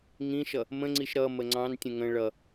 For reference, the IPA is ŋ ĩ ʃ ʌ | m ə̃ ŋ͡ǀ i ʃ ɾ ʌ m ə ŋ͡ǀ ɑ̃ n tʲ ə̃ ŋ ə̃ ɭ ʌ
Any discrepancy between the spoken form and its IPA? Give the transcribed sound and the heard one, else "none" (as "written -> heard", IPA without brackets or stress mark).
none